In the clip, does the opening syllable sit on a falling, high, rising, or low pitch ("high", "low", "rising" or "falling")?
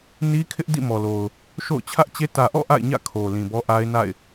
high